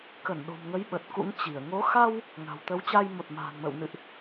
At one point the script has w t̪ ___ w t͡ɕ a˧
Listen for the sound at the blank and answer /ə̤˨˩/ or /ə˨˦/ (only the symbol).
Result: ə˨˦